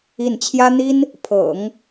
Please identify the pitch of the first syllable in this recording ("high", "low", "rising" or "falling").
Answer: falling